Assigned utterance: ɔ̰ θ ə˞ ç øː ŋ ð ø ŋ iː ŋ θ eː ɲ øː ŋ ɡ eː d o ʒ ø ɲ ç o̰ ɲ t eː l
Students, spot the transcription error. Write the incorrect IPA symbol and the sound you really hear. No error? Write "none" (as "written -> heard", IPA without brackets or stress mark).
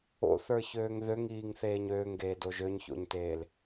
ɔ̰ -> o̰